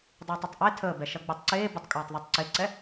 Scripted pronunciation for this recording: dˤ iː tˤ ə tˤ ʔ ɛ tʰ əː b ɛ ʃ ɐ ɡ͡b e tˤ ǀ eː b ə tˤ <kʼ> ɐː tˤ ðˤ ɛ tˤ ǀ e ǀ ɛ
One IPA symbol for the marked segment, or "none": kʼ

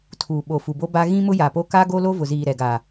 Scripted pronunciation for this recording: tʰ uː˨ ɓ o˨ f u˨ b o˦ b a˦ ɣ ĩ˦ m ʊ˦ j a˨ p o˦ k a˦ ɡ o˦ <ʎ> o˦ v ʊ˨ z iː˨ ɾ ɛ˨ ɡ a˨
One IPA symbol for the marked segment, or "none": l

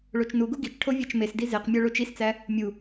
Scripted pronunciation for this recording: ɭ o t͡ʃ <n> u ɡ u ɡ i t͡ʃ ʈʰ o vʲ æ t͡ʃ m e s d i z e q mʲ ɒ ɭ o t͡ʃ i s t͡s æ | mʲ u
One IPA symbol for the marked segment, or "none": n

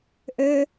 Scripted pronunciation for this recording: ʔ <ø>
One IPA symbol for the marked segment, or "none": ø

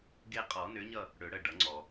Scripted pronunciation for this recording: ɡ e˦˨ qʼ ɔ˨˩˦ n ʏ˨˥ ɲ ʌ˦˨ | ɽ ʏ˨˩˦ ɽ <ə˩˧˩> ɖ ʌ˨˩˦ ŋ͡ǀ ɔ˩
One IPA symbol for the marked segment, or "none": ə˩˧˩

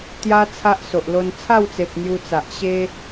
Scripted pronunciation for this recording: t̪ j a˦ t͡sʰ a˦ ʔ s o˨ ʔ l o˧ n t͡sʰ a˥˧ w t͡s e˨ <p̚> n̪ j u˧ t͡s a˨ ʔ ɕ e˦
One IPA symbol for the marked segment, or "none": p̚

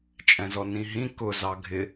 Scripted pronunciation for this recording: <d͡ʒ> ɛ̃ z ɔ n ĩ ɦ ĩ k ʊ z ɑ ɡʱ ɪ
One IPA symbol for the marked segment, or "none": t͡ʃʼ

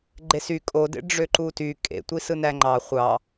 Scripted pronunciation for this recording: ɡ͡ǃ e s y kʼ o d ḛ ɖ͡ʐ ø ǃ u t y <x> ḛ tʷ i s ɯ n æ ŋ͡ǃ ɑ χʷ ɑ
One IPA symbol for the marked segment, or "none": kʼ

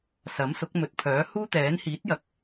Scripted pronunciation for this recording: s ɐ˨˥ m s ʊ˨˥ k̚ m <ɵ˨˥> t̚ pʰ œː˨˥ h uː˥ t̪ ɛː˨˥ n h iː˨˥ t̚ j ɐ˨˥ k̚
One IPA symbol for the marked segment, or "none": ɵ˨˥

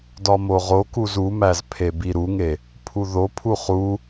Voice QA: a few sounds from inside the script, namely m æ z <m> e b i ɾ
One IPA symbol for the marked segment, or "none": pʰ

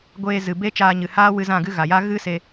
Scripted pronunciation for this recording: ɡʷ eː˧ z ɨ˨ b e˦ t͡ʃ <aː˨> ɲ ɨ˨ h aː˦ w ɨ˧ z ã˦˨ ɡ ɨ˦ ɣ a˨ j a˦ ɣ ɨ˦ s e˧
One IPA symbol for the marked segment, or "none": aː˧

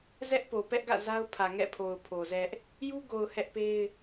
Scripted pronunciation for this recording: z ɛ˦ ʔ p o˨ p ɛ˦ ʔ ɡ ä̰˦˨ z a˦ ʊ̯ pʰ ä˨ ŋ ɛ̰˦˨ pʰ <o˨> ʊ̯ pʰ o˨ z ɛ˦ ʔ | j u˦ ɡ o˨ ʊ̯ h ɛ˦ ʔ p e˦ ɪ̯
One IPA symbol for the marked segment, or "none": o˨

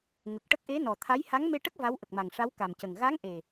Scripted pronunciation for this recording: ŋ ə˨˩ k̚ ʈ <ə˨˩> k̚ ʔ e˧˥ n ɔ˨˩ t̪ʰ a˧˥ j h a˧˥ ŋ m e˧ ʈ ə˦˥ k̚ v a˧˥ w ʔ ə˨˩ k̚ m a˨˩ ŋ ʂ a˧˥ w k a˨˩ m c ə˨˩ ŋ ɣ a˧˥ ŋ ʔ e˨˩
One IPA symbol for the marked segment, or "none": ə˦˥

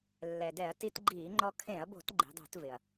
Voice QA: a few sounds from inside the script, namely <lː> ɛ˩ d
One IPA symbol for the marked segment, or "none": lː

